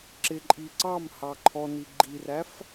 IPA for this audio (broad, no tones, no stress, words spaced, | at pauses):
ǁɪǃʼi ǀɑmhɑ ǃʰɔni ɡ͡ǃiræf